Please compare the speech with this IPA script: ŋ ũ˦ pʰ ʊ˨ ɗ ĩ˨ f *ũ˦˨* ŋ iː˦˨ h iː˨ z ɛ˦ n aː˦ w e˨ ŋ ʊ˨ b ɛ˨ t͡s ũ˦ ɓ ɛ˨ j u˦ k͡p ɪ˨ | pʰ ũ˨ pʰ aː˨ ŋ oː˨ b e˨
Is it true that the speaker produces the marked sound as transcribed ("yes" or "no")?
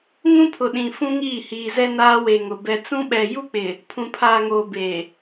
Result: no